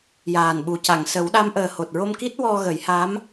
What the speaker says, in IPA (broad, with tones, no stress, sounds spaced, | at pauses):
j aː˨˩ n ɓ u˨˩ c a˨˩˨ ŋ s ə˨˩˦ w ɗ a˧˥ m ʔ əː˨˩ h o˨˩ t̚ ɹ o˧ m k i˦˥ t̚ w ɔ˧ ɣ ə˨˩˦ j h a˧˥ m